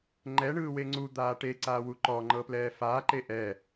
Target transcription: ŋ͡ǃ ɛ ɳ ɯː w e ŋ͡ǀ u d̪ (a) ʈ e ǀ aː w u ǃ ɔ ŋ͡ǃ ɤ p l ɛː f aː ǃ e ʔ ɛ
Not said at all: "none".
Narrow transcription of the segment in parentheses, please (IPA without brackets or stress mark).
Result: aː